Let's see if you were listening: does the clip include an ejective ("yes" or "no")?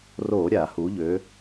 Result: no